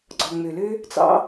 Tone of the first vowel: low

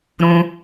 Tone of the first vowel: low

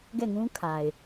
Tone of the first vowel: falling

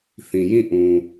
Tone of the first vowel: low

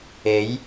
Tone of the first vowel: rising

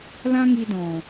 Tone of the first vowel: high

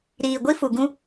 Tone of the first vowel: low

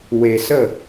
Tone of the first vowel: low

